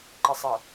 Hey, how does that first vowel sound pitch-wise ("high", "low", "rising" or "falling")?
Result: low